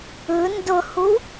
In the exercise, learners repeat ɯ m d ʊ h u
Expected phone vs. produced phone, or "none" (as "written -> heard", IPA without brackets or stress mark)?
m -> n